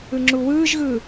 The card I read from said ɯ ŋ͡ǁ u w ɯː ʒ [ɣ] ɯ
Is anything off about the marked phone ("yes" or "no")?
no